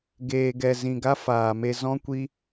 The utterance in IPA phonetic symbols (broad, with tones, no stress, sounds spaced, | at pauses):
ɡ eː˨ ɡ ɛ˨ z ĩ˨ ɡ a˦ f aː˨ m e˧ z ɔ̃˦ kʷ i˦